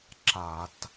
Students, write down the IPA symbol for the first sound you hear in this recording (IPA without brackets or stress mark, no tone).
ǁ